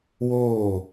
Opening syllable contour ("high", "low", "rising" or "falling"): falling